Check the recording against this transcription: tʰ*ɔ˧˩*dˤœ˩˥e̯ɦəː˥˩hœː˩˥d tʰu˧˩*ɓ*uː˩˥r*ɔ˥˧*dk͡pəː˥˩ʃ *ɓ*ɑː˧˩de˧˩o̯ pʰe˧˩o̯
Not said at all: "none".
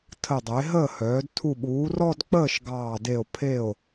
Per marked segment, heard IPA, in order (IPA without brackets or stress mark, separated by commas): ə˧˩, ɓ, ɔ˥˧, ɡ